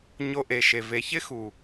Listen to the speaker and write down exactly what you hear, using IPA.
ɲ o˧ ʔ e˨ ʃ e˨ v e˨ ç ɪ˦ x u˨

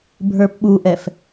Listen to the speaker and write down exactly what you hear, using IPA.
bʱ ə˞ p ɓ u ʔ ɛ f

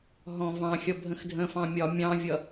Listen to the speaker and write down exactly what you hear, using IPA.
ɦ ɔ̃ v ɑ̃ xʲ ʌ bʱ ə̃ x dʱ ə̃ f ɑ̃ mʲ ɒ mʲ ɑ̃ vʲ ʌ

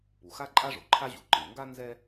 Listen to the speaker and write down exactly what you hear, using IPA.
p u˩ x a˥ ǃʼ a˥ ʐ o˩ ǃʰ a˥ ʑ u˩ ǃ ɯ˩ ŋ ɡ a˥ n z ɛ˥

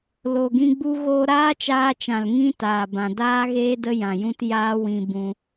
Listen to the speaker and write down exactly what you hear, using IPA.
l o˨ ɡ ĩ˧ ɡ͡b u˦ ɣ oː˧ ɾ aː˦ t͡ʃ aː˧ t͡ʃ ã˨ l ŋ ĩ˦ t aː˨ b ã˨ d aː˦ ɣ eː˦ d ə˦ j ã˨ j ũ˧ t j aː˦ w ĩ˧ b ũ˧

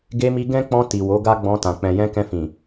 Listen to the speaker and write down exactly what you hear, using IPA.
ɡ e˧ m i˧ ɡ ɛ̃˦ k͡p ɔ̃˧ t i˨ w o˨˦ ɡ a˦ ɡ͡b ɔ̃˧ t ã˨ k͡p ɛ̃˨ j ɛ̃˧ k ɛ̃˧ f ĩ˨

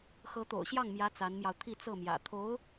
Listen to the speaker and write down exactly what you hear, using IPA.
x ɤ˧˥ t̪ o̰˨˩ ʊ̯ ɕ j ɑ˥˩ ŋ m j ä˧˥ t͡s a˧˥ n m j ɑ˧ ʊ̯ t̪ʰ i˥˧ t͡s ɤ˥˩ m j ä̰˨˩ t̪ʰ o˧˥ ʊ̯

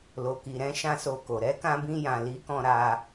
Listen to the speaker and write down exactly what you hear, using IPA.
l o˨ k i˨ ɾ ɛ̃˨˦ ʃ ã˦˨ s o˧ k o˨ ɾ ɛ˨˦ k ã˧ b ĩ˧ j ã˨ l i˨˦ k ɔ̃˧ ɾ a˧

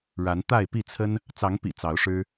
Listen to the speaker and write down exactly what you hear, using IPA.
ɻ a˨˦ n t̪ a˥˨ ɪ̯ p i˥˨ t͡sʰ ə˦ n | t͡s ɑ˨˦ ŋ p ḭ˨˩ t͡s ɑ˨˦ ʊ̯ ʂ ɻ̩˦

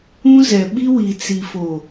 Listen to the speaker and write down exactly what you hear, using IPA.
ũ˦ z ɛ˨ ɓ i˦ w i˨ t͡s i˨ f o˨

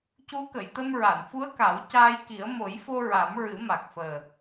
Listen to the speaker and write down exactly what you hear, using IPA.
c u˧˥ k ə˨˩˨ j t̪ ə˧ m ɹ a˨˩˨ n f u˧˥ ə̯ k a˨˩˦ w c aː˧ j k i˨˩˦ ə̯ m o˨˩˦ j f o˧ ɹ a˨˩˦ m ɹ ɨ˨˩˦ m a˨˩ k̚ f əː˨˩

